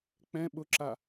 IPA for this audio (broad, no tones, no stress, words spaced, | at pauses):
k͡pɛ̃ ɓʊǁa